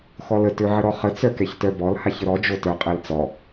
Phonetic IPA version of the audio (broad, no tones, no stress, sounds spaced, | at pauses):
x ɔ l ə t ø ʕ ə ɾ ɔ χ ə t͡s œ k ɛ ç t œ b ɔ l h a ç ə ɾ ɔ d͡ʒ o t œ qʼ ɛ l t͡s ɔ